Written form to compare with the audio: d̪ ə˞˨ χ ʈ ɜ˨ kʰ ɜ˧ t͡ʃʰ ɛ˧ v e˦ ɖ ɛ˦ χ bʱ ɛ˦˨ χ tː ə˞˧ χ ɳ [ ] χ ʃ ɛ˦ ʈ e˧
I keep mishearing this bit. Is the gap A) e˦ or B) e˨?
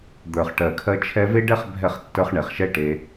B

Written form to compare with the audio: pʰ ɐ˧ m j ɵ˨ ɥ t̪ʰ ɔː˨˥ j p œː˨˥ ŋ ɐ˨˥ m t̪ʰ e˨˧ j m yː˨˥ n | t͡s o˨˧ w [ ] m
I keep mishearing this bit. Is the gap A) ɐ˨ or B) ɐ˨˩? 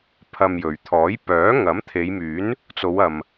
A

